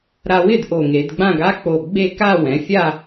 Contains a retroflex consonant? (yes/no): no